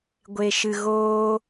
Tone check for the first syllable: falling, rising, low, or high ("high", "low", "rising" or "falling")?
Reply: low